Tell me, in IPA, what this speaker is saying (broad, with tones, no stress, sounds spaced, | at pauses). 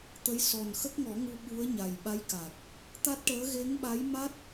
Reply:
t̪ ə˧˥ j s ɔ˨˩ n x ə˦˥ k̚ ŋ ɔ˨˩˦ ŋ u˧ ɓ u˧˥ ə̯ ɲ a˨˩ j ɓ a˧˥ j k a˨˩ k̚ | t̪ a˦˥ t̚ ʈ əː˧˥ ɣ e˧˥ ŋ ɓ a˧˥ j m a˦˥ t̚